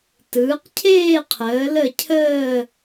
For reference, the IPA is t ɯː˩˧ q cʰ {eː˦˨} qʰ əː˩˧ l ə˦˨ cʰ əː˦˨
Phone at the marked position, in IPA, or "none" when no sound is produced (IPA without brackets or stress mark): eː˦˨